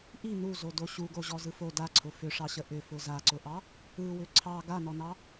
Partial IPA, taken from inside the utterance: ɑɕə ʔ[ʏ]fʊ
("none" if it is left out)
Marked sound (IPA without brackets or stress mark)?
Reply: ʏ